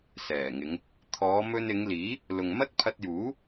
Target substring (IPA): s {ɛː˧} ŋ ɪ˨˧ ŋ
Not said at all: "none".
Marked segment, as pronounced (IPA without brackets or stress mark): ɛː˨˩